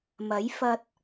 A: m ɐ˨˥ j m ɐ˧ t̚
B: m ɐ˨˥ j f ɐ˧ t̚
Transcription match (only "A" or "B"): B